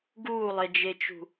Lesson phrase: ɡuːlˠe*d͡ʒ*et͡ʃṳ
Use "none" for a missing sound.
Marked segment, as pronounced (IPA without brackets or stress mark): d͡ʒ